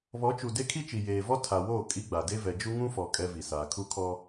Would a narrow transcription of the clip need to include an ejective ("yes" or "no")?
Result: yes